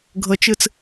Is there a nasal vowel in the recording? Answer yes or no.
no